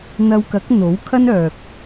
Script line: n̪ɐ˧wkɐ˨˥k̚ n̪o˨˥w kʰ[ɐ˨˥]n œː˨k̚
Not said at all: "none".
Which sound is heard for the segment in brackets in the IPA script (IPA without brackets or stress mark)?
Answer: ɐ˥